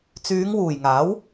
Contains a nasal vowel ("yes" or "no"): no